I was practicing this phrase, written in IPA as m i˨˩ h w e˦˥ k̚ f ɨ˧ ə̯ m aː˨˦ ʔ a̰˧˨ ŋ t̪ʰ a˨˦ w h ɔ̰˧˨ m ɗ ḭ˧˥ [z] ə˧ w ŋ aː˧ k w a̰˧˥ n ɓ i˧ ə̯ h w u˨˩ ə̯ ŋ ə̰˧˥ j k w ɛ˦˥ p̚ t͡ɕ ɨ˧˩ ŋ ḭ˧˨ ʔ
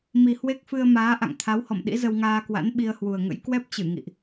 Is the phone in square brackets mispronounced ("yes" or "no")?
no